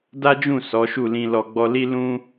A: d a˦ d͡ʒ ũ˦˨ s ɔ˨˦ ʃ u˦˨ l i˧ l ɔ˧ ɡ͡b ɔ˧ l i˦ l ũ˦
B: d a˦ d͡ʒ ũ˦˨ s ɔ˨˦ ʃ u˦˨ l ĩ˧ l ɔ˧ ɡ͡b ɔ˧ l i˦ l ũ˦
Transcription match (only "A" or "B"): B